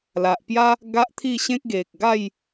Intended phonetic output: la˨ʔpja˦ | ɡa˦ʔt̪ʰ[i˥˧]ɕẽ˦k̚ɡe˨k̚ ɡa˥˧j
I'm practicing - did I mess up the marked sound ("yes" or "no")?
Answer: no